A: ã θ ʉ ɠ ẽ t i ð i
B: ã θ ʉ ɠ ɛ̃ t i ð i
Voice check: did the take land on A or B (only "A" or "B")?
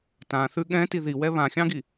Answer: B